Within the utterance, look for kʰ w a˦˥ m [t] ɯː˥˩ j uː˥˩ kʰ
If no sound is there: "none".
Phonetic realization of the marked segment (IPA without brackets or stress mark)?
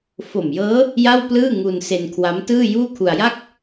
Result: t